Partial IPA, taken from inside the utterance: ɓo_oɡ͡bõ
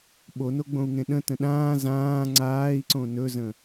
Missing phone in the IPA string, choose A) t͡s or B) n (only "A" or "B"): B